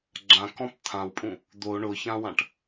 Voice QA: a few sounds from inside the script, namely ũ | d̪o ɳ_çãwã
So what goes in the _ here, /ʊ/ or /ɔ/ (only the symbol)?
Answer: ʊ